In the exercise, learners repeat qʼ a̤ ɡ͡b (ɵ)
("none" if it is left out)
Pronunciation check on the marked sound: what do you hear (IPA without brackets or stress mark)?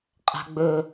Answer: ɵ